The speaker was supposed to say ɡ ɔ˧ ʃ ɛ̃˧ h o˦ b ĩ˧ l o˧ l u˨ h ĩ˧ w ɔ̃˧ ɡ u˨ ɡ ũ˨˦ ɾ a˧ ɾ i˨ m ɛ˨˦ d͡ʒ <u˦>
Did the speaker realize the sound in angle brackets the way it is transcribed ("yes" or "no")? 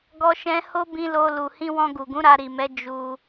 no